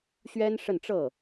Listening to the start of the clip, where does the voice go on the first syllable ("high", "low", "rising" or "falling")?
high